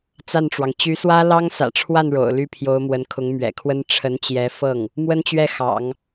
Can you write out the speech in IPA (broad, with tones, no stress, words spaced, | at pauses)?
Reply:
t͡sa˥˩nʈ͡ʂwɑ˩ŋ t͡ɕy˧˥swä˥ lɑ˥ŋ sä̰˨˩ʈ͡ʂʰwa˥˩n ɻo̰˨˩ʊ̯ly˥pʰjo˧˥ʊ̯mwə˧˥n kʰʊ˧˥ŋmɥɛ̰˨˩kʰwə˥n ʈ͡ʂʰə˧˥nt͡ɕjɛ˧˥fɤ˥˩ŋ | mwə˥nt͡ɕɥɛ˥˩xɑ̰˨˩˦ŋ